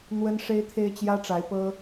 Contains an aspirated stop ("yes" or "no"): yes